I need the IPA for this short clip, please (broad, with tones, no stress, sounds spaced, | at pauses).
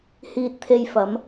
h iː˧ t̚ t̪ʰ e˧ j f ɐ˨˧ m